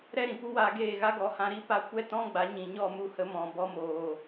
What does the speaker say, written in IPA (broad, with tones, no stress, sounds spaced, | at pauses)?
ɾ ɛ˦ ɾ ĩ˨ p u˦ w a˧ ɡ eː˦˨ ɣ a˦ ɡ ɔ˨˦ h ã˧ ɾ i˦ p a˧ kʷ ɛ˦ t ɔ̃˦ ɡ͡b a˨˦ ɲ ĩ˨ ɲ ɔ˦˨ m u˦˨ h ə˧ m ɔ̃˨ b ɔ˧ m oː˨